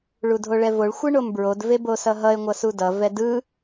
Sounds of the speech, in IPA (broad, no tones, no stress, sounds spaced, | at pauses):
ɭ u dʱ o ɭ ɛ v o ɭ xʷ ɯ ɳ o m b ɹ o d v e b o s ʌ ɦ ʌ e̯ ŋʷ ʌ s u d ʌ v ɛ d ɯ